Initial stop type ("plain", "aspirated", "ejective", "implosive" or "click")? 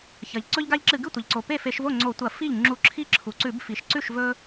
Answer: click